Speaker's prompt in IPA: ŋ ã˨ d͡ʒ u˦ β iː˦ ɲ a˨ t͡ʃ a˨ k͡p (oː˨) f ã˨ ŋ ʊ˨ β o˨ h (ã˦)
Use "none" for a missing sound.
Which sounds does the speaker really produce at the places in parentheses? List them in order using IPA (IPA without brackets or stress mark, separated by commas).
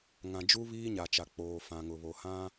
oː˨, ã˦